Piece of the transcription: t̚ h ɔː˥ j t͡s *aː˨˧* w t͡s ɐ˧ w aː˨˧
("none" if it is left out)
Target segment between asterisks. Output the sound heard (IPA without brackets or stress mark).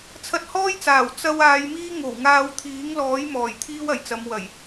aː˨˩